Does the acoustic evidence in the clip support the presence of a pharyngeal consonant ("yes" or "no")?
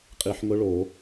yes